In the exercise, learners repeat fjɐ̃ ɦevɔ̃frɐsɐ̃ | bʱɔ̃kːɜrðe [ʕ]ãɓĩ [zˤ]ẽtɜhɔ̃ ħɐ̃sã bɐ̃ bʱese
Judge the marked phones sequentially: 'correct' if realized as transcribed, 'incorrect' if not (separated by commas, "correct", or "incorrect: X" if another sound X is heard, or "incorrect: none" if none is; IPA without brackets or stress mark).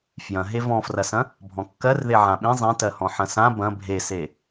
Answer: correct, correct